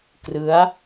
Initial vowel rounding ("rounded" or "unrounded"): unrounded